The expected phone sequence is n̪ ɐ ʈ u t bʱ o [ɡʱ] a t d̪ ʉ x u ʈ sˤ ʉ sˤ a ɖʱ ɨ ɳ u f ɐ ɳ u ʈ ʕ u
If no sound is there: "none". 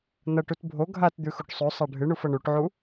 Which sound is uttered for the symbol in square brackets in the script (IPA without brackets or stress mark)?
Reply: ɡʱ